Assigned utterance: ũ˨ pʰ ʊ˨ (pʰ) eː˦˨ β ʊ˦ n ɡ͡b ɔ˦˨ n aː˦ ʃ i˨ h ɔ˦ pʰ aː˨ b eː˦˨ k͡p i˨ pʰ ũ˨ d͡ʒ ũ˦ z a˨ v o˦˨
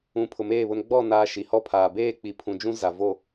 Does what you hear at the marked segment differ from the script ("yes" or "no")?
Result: yes